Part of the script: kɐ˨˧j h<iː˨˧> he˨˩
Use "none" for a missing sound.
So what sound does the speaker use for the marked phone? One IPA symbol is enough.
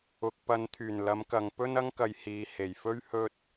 iː˨˧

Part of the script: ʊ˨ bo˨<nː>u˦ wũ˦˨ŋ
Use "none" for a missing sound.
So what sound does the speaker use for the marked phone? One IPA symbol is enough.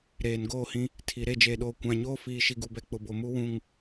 m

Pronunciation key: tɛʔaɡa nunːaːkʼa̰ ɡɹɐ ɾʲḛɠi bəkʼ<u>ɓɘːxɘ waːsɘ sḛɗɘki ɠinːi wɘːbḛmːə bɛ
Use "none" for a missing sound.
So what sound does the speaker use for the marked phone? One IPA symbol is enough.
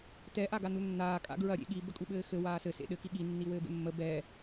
u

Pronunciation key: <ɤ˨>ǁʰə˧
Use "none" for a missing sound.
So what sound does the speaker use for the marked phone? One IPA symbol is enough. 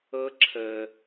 ɤ˦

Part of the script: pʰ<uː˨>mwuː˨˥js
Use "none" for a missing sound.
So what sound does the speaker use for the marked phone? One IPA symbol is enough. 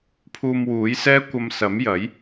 uː˧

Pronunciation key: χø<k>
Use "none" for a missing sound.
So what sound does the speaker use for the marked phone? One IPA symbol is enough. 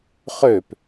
p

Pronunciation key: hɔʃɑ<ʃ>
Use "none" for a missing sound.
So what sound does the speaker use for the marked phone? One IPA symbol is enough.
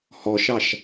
ʃ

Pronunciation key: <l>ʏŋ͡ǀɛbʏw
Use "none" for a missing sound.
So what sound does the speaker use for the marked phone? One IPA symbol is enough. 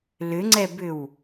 l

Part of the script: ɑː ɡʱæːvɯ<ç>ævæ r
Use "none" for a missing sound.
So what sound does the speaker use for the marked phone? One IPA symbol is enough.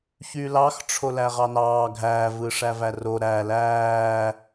ʂ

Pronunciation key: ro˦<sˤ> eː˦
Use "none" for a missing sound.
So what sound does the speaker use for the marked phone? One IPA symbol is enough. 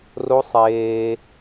sˤ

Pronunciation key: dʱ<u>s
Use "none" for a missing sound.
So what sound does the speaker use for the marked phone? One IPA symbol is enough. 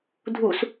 u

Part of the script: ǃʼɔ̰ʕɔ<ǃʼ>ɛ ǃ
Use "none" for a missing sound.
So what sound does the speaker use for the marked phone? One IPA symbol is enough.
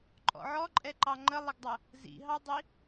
ǃʼ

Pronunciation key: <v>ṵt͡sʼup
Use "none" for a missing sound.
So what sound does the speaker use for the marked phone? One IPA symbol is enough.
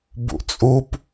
b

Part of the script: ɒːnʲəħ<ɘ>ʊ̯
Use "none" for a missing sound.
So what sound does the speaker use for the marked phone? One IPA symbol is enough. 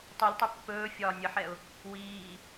ɛ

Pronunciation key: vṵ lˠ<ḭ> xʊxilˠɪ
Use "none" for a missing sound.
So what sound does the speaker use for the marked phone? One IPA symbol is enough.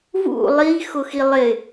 i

